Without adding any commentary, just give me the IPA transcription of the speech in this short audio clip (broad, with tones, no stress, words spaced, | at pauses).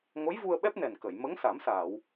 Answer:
ŋo˧˥jvu˧ə̯ɓɛ˦˥p̚nɛ˨˩n kə˨˩˨j mə˧˥ŋ sa˨˩˦msaː˨˩˨w